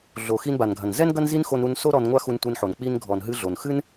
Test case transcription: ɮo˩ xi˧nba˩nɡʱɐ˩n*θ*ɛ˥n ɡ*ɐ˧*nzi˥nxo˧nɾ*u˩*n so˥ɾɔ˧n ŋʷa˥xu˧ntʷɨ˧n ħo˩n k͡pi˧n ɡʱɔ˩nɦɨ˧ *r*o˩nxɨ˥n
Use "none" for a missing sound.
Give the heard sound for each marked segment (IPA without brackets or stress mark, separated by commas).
z, ɐ˥, u˧, ɮ